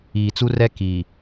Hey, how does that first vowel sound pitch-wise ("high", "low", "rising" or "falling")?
low